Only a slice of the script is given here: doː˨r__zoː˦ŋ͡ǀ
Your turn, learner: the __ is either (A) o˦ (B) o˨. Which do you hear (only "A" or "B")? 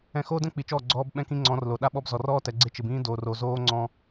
B